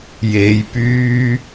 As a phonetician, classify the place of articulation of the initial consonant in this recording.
palatal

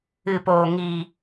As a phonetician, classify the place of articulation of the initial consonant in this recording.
labial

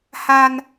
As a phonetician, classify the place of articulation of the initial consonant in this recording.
glottal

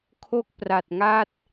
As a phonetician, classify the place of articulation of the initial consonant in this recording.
velar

